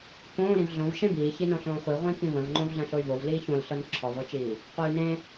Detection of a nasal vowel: present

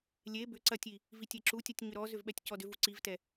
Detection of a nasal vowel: absent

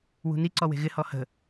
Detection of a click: present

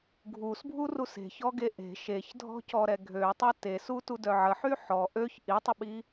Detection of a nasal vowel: absent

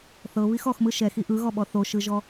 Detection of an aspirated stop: absent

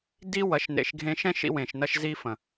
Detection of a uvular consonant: absent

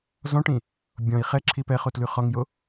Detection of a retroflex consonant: present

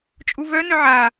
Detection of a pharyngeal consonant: present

